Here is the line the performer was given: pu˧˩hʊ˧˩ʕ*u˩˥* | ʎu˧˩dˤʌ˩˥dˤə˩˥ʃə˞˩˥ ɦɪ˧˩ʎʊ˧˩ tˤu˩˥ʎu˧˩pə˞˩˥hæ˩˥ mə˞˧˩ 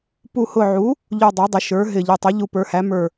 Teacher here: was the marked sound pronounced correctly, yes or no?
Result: yes